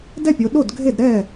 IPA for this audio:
d ɛ˥˩ pʲ o˩˧ ɗ o˥˩ d ɡʱ e˥˩ d ɾ ɛ˥˩

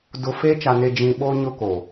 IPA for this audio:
d ʊ˨ f e˦ t͡ʃ a˨ n e˨ d͡ʒ ĩ˨ ɓ o˦ ɲ ʊ˦ k o˨

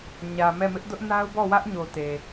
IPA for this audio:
ɲ ä˨ m ɛ˦˨ m ɪ˦ ʔ d ʊ˦ ʔ n a˦ ʊ̯ b ɔ˦˨ w ä˦ ʔ ɲ o˨ t e˨

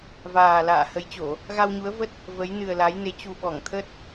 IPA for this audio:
v aː˨˩ l a̰ː˧˨ h ə˨˦ j t͡ɕ o˧˩˨ | ɣ a˧ w ɲ u˨˦ ə̯ v ə˦˥ t̚ | v ə˨˦ j n ɨ˨˩ ə̯ l a˨˦ j n e˨˦ t͡ɕ u˨˩ ɓ ɔ˧˩ ŋ t̪ʰ ə˦˥ t̚

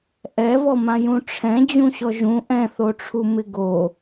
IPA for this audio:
ʔ ɛ v ɔ m ã j ũ ʈ͡ʂʰ ɛ̃ d͡ʑ ũ ɕ ɔ ʒ ũ ʔ ɛ̃ θ o ʈ͡ʂʰ u m ɪ ɡ o

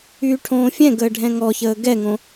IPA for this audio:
yː ʈʰ õː fʲ ɛ̃ ɡ əː ɖʱ ɛ̃ ŋ ɔ ç əː ɡ ɛ ŋ õ

